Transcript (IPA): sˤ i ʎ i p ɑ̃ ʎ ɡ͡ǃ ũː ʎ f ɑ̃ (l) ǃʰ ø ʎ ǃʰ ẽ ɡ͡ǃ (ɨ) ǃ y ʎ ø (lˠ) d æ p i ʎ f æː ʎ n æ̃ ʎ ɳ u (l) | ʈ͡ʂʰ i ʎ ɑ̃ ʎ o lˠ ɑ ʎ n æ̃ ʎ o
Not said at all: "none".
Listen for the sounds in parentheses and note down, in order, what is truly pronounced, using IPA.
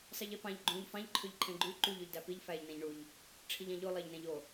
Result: ʎ, y, ʎ, ʎ

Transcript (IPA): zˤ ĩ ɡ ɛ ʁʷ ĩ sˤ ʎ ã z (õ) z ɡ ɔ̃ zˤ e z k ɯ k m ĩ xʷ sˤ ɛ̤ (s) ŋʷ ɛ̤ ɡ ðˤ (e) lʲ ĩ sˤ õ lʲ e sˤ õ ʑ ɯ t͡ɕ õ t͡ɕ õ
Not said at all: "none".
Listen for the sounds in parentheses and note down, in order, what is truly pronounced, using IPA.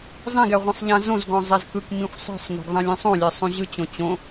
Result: õ, sˤ, ẽ

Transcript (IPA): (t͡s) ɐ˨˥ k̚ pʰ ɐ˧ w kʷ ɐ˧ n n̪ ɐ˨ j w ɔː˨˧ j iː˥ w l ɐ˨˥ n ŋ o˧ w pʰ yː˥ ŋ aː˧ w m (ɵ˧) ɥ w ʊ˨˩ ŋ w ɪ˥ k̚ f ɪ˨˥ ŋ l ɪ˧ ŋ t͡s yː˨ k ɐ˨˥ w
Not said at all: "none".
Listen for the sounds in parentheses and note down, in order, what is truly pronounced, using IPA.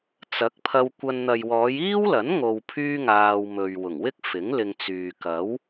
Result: t͡s, ɵ˨

